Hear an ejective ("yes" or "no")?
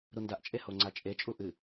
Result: yes